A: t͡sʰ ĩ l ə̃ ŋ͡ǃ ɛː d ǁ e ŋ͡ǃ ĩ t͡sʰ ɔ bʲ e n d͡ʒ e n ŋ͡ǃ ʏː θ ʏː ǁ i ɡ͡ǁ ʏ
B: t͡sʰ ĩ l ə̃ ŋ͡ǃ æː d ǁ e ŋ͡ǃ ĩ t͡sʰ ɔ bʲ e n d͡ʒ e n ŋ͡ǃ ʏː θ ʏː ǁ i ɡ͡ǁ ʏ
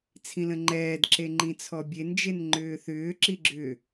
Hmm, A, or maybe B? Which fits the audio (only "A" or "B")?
A